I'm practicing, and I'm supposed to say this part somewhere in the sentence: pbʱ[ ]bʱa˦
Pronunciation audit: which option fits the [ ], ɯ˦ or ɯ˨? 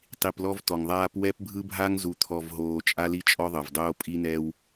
ɯ˦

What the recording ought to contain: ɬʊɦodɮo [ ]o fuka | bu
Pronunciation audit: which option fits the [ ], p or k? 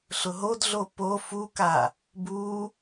p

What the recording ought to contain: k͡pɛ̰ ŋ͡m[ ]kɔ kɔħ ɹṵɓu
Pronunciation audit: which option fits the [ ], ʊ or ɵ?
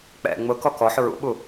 ʊ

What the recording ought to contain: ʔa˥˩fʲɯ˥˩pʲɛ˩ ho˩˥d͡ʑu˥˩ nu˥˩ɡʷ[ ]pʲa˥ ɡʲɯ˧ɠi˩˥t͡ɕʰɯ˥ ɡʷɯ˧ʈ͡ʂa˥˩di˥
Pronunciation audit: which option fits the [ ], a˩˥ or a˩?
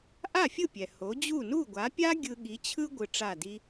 a˩˥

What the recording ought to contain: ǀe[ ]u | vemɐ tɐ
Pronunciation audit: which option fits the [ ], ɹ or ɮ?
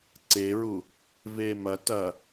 ɹ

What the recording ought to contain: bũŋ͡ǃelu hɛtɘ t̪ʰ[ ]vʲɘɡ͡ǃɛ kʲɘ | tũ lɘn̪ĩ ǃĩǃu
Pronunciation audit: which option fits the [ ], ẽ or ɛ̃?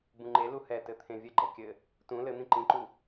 ẽ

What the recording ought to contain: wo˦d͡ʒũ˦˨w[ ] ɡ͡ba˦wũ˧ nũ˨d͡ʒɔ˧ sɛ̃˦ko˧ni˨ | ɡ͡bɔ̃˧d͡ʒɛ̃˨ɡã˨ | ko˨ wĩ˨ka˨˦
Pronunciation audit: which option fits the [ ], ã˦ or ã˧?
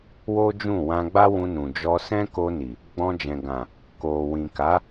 ã˧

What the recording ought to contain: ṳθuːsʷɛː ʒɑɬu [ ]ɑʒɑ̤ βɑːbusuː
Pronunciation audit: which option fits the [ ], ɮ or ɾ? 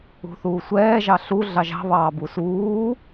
ɮ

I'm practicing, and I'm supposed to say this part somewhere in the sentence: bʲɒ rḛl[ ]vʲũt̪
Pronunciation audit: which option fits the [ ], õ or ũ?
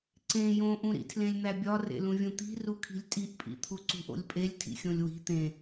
ũ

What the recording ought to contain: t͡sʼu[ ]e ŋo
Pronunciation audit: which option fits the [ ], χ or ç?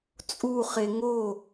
χ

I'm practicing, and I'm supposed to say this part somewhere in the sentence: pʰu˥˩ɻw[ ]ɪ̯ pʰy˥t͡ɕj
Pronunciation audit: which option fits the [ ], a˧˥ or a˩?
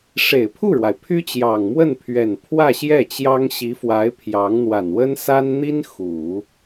a˩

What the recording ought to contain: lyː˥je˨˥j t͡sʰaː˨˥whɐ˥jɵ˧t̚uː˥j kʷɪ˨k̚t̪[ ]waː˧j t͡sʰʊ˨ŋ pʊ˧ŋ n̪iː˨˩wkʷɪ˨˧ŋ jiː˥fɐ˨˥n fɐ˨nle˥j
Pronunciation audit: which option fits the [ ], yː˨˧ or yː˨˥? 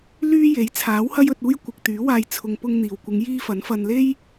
yː˨˥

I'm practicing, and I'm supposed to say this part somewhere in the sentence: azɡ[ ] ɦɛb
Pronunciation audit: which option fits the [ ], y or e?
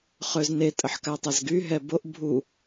y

